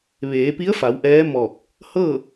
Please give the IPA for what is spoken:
ʋ eː˩˧ p i˧˥ ə̯ f a˩˧ w ʔ ɛː˧˥ m ɔː˧˩ k̚ | h ɤː˥˨

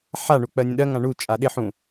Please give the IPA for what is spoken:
ħ a ɳ u k͡p ɜ nʲ ə̃ ɗ ɜ ŋ ã ɳ u t͡ʃʼ a ɗ ɪ ħ ũ

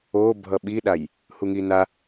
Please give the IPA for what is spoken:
o bʱ ʌ ɓ i ɗ a j | h u ŋ i n a

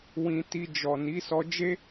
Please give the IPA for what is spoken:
w ĩ˧ t i˧ d͡ʒ ɔ˨ n i˨˦ s ɔ˧ d͡ʒ e˦

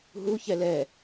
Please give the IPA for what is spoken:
ɦ u ç ɛ l ɛ

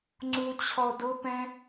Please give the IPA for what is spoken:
ŋ͡ǀ u t͡ɕʰ ɔ d ʊ p ɛ̃

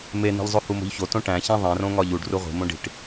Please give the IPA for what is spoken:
m e n i̤ ʎ zˤ o h u m o̤ ʎ ç o t õ ʈ æ̃ ç æ̃ ðˤ ẽ r õ ŋ ɒ ʎ u ɖ r u ʁʷ i̤ m õ ɖ i̤ ʈ

